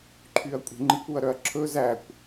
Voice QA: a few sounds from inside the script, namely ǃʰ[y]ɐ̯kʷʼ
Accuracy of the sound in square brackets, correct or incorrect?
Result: correct